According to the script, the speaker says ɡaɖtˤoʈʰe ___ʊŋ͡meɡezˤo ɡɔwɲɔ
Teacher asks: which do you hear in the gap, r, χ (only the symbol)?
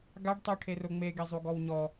r